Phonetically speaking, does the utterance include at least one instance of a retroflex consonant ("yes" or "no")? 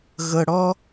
yes